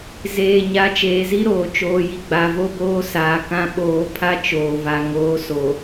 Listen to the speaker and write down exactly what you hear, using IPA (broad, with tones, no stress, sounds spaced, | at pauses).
z eː˨ ɲ a˨˦ t͡ʃ eː˨ z i˦ ɾ oː˨ t͡ʃ oː˨ j i˨ ɡ͡b a˨ v o˦ b oː˦ s aː˨ k ã˦ ɓ oː˨˦ pʰ a˦ t͡ʃ oː˨ v a˨ ŋ oː˨˦ s o˨